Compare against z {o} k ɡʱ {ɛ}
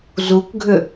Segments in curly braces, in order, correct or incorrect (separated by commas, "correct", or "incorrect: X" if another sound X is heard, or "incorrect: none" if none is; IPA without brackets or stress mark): incorrect: u, incorrect: ʏ